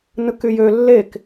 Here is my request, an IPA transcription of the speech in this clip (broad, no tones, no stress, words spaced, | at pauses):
nɯkyjø lːek